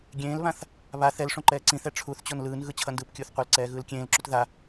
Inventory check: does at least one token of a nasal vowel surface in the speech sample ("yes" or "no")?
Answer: yes